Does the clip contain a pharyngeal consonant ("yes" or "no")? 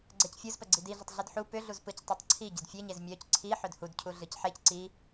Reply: yes